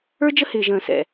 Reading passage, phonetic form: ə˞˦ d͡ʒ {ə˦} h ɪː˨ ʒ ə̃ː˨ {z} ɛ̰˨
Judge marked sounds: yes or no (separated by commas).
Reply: yes, no